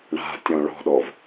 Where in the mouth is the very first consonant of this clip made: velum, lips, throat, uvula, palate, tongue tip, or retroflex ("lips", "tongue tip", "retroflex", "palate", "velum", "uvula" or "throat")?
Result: retroflex